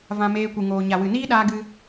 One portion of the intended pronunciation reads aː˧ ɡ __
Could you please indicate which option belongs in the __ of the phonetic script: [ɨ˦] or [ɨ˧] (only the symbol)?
ɨ˧